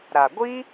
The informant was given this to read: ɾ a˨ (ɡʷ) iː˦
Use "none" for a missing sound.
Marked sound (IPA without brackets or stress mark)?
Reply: ɡʷ